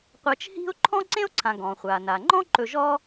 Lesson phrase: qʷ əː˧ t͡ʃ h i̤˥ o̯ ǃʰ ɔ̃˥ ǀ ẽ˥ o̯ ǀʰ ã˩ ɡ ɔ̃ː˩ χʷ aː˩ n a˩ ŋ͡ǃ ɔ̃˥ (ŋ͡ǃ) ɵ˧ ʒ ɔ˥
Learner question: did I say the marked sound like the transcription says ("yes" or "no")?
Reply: no